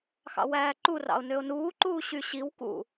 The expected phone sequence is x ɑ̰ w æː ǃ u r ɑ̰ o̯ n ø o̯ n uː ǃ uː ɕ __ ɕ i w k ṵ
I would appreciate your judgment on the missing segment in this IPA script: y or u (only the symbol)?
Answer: y